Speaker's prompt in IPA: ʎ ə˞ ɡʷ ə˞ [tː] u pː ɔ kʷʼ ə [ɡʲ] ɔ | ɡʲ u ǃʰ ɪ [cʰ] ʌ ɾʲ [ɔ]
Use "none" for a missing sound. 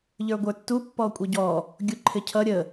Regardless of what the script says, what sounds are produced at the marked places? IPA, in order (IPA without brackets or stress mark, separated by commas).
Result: tː, ɟ, cʰ, ə